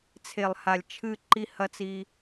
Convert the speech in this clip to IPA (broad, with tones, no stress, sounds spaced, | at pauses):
t͡sʰ e˨ lˠ h a˨ lʲ t͡ʃʰ ɨ˦˨ ǃ i˦ h ɐ˦ t͡s i˦